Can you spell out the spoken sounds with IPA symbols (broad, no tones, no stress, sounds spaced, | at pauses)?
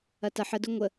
ɐ t ɐ ħ ə d ʊ ŋʷ ə